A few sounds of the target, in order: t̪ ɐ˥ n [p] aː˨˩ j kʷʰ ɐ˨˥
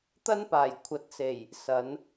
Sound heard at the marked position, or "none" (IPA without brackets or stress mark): p